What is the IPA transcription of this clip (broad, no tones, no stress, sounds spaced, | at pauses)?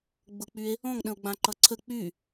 ɡ͡b ʊ k͡p y e̯ | ɔ̃ ŋ ɗ ə̃ o̯ ɡ͡b ã ǃ ʌ ǀʰ ə k͡p y